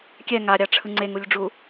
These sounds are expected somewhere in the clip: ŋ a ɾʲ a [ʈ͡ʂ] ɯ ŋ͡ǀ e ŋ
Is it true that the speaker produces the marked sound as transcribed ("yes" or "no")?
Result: no